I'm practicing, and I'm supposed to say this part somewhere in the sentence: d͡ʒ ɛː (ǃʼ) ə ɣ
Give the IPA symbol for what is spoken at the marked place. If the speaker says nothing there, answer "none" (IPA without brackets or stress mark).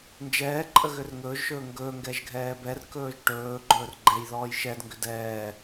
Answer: ǃʼ